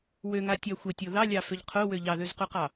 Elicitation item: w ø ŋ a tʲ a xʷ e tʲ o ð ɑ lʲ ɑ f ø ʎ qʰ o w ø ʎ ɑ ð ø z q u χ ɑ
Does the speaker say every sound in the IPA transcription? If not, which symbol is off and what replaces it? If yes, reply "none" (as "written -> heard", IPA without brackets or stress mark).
χ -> q